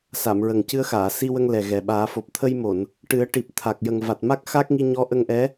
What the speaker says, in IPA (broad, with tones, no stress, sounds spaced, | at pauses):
s a˨˩˨ m ɹ ə˨˩ ŋ c ɨ˧ ə̯ x aː˨˩˨ s i˧ w ə˧ ŋ l ɛ˨˩ ɣ ɛ˨˩ ɓ aː˨˩˦ f o˨˩ p̚ t̪ʰ ə˧ j m o˨˩˨ n | ʈ ɨ˨˩˦ ə̯ ʈ i˨˩ p̚ t̪ʰ a˨˩ k̚ j ə˨˩ ŋ v a˨˩ t̚ m a˦˥ k̚ x a˦˥ k̚ ŋ i˧ ɲ ɔ˧˥ ʔ ə˧ ŋ ʔ ɛ˧˥